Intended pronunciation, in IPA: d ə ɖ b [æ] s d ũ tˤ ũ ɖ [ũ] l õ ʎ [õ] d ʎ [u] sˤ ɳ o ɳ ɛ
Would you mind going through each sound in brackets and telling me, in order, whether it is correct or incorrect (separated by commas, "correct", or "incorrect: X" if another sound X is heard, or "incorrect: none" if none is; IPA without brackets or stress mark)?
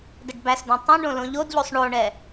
correct, incorrect: õ, incorrect: o, incorrect: o